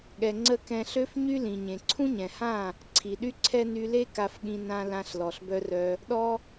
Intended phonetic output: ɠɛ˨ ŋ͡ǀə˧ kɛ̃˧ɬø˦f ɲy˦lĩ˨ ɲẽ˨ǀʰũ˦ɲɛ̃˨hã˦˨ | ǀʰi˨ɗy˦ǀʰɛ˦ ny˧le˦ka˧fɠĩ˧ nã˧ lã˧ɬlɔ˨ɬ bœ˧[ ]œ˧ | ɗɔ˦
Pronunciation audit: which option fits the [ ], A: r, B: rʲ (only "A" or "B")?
A